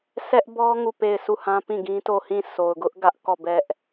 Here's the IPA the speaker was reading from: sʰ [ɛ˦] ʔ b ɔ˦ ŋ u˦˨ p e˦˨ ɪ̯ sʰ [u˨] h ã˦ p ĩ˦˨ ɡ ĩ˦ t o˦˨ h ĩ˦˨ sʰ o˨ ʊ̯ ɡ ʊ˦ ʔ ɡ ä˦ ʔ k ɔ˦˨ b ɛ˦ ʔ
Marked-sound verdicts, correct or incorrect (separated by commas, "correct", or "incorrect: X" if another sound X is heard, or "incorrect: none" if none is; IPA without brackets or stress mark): correct, incorrect: u˦˨